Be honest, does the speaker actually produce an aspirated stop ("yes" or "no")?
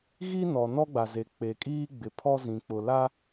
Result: yes